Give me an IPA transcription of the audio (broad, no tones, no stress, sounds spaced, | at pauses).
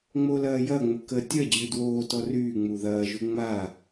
ŋ͡m o l ɐː j ɐ ŋ͡m ʊ k ə tʲ ɐ d͡ʑ ʉ d w oː t ɔ r yː ŋ͡m u ð ɐː ʒ u ŋ͡m a